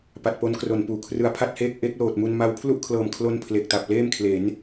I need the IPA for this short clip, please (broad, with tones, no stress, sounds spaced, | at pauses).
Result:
p a˨˩ t̚ p o˦˥ n k r o˨˩ n p uː˩˦ kʰ r ɯ˧ a̯ pʰ a˥˩ t̚ h eː˥˩ k̚ ʔ e˦˥ k̚ l oː˨˩ t̚ m u˧ n m a˧ w pʰ l u˥˩ ʔ kʰ l ɤː˨˩ m kʰ l o˧ n pʰ l e˨˩ k̚ t a˨˩ p̚ l eː˥˩ m kʰ l e˩˦ n